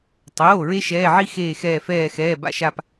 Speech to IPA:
tˤ oː˩˧˩ ɹ e˦ ʃ ɛː˩˧˩ ʕ i˦ x eː˧˩ x ɛː˧˩ f ɛː˧˩ x ɛː˩˧˩ b a̰˦ ʃ a˧˩ p

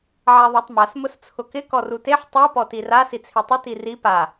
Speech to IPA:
ʕ a ðˤ a tˤ m a s m ʊ s t͡sʰ ʊ k ɪ k ɔ r u t e ħ tˤ u p ɔ t i r a s i t͡sʰ e tˤ ɪ t i r i p a

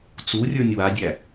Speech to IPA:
t͡s u rʲ ə˞ nʲ w a dʲ æ

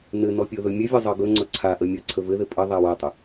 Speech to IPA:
n ɘ n ɔ pʲ ɤ ð ɵ mʲ ɘ vʲ ɔ zˤ ɤ ɡ ɵ ŋ͡ǀ ɵ ǀʰ a ʔ ə mʲ ɔ ǀʰ ə v ɘ ð ɘ pʼ ɘ ðˤ a w a tˤ ə

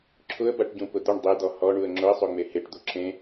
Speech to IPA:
ǁʰ ʊ ə̯ b a ʈ ɟ ũ p ʊ d̪ ʊ ɳ dˤ e d̪ ɔ h ɔ ɳ u ə̯ ŋ͡ǁ ʊ ə̯ sˤ o ŋ͡m e h e ʈ d̪ o ǁʰ ẽ

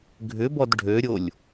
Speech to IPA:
ɡʱ ʏ b ɔ d ɖʱ ø ɾʲ o lʲ

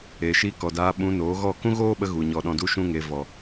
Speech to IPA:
e˨ ʃ i˧ k ɔ˨ d aː˧ ɓ ũ˧ n oː˨˦ ɣ ɔ˦˨ k ũ˦ ɣ oː˦ ɓ ə˧ ɣ u˨ ɲ ɔ˨ ɗ ɔ̃˨ d u˧ ʃ ũ˦ ŋ e˧ v ɔ˨

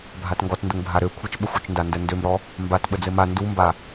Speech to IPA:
bʱ a t ŋ ɡ ɔ t n d ə ŋ bʱ a ɾ ø kʷʰ ə t͡ʃ ɓ ə xʷ ø t͡ʃ n d a n d ə n d ø m ɾ ɔ | m b a t ɓ ə d͡z ɘ m a n d u m b a

